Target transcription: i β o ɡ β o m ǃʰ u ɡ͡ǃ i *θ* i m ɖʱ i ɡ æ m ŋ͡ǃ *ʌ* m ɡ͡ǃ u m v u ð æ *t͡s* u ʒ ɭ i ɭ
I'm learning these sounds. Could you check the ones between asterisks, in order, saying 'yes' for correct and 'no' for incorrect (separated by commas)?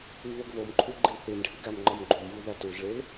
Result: yes, no, no